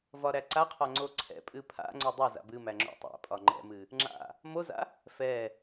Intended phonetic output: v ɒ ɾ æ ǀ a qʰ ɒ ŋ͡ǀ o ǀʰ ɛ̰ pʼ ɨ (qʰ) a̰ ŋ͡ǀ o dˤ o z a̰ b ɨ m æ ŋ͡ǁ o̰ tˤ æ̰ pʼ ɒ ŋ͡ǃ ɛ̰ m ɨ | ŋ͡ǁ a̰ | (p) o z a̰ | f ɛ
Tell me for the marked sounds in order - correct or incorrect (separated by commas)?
incorrect, incorrect